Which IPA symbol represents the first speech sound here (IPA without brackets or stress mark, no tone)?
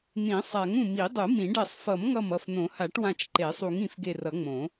n̪